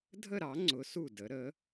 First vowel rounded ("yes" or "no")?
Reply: no